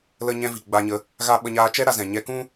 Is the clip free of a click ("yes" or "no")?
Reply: yes